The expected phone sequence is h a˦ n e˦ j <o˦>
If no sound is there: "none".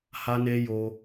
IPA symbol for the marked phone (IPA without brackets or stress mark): o˦